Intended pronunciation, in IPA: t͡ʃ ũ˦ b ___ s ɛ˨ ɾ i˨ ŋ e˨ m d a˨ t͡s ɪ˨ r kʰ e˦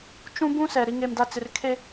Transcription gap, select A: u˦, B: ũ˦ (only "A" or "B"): B